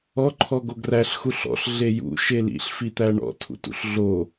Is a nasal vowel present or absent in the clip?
absent